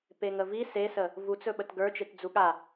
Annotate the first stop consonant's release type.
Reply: plain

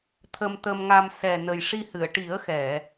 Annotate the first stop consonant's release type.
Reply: aspirated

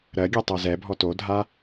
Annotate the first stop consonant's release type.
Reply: plain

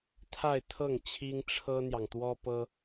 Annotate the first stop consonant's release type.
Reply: aspirated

